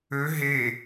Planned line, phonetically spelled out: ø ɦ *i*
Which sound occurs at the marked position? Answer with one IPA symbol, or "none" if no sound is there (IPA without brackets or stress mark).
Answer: e